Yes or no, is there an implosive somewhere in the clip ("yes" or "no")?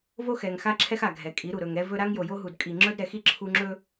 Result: no